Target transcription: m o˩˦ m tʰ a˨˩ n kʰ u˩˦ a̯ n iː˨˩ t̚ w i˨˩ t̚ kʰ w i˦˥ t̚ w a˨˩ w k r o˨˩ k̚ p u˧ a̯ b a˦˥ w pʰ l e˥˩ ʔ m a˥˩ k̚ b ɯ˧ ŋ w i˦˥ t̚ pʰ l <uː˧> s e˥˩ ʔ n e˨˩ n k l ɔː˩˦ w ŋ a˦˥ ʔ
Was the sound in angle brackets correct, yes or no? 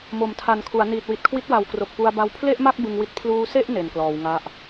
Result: yes